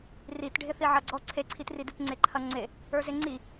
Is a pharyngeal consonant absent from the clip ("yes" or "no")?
no